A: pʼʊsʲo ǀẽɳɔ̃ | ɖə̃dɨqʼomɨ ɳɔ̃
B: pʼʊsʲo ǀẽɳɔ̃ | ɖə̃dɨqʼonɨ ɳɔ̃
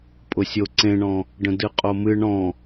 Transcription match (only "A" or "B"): A